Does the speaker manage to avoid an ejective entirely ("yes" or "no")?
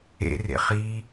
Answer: yes